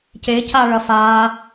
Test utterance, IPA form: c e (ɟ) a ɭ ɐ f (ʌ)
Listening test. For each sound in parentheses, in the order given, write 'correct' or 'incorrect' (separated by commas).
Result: incorrect, incorrect